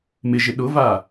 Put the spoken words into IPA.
mɪʒɪ ɗʊva

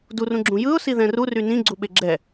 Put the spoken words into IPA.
durũɡ͡ǁũ jɯʊ̯siðɛ̃ rury nĩɡ͡ǀuɓe ɡ͡ǁɛ

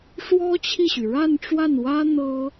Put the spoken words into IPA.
ʂwɔ˥t͡ɕʰi˥˩ɕy˩ ɻa˥˧nʈ͡ʂwa˥˩nwä˥ n̪ɤ˥

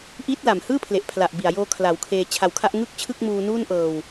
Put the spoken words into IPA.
ʔiː˦˥t̚la˨˩mhɯː˥˩pʰle˨˩ʔ pʰla˨˩ʔ bi˨˩a̯joː˧kʰla˩˦w kʰeː˧t͡ɕʰa˧wkʰa˥˩ʔ ŋɯ˥˩k̚ t͡ɕʰɯ˥˩k̚muː˧nuː˥˩nʔɤː˧w

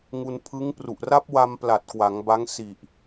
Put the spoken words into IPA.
ŋu˧npʰɯ˦˥ŋ pru˨˩ʔra˦˥p̚wa˧mpla˨˩t̚ kwa˩˦ŋ ba˦˥ŋsi˨˩ʔ

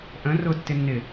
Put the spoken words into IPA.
ʔə̃ rʊtːɪnːɪ

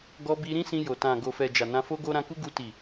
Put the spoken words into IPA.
ɡɔ˧bi˧ɾĩ˦ sĩ˧jo˨ tã˨ɡo˨fɛ˨ d͡ʒa˨nã˧fo˦ɡo˦ ɾã˧ku˦ɡu˧ ti˨

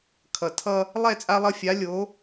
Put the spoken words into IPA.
kʰʌ˩tʰʌ˧ | lˠɛ˥˩t͡sʼa˧lˠʌ˧fʲa˩˥ lʲo˩˥

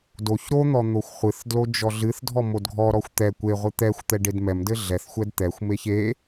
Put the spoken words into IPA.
doç ɾon̪ɔ n̪oxʷχʷɨθdlo d͡ʒɔɮɨθdʱɔ modɡʱɔɾɔxʷ t̪ɛ kʷeʁʷɨ t̪ɛxʷt̪ɛ ɖedmɛmdɘ ɮɛθxʷɛd t̪ɛxʷmeç e

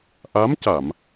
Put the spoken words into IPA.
ʔa˧˥mca˨˩˨m

